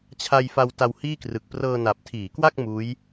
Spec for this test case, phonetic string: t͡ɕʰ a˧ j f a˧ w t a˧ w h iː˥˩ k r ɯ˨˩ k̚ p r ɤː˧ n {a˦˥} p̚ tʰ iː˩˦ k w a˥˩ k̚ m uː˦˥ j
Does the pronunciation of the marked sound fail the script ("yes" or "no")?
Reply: yes